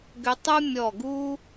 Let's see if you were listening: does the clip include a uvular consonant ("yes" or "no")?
no